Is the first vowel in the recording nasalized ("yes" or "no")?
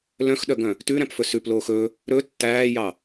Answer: yes